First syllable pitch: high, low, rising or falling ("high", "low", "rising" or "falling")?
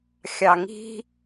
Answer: low